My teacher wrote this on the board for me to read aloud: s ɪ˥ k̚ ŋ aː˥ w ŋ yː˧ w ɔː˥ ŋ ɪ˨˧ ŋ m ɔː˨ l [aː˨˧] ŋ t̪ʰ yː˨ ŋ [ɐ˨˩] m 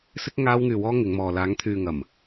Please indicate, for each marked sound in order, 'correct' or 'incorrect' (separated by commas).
correct, correct